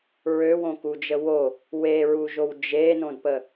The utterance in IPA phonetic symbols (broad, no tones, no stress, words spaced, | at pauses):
ɹøwõkud͡ʒə wo | weɹuʒow d͡ʒenõdpə